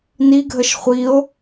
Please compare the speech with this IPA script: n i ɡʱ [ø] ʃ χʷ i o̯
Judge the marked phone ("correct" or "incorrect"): incorrect